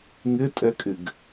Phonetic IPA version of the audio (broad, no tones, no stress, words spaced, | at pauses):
ŋɪtʼɛkʼɪɡ